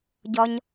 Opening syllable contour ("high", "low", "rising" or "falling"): high